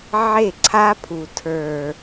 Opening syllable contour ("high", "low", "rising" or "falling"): falling